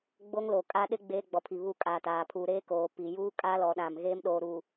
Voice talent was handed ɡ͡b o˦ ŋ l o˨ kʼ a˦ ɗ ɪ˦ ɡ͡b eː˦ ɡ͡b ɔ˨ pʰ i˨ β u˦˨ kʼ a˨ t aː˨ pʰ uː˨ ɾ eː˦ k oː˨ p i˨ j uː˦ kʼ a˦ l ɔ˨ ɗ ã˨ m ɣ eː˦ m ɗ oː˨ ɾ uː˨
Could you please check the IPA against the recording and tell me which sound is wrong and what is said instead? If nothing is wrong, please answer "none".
none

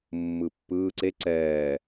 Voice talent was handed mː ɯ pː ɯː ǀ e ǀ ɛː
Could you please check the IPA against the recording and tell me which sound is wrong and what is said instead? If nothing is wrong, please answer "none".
none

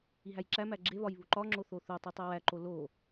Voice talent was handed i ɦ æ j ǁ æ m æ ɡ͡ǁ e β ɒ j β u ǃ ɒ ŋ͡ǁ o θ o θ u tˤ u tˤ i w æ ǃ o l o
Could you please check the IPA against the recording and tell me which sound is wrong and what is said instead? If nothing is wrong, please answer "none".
none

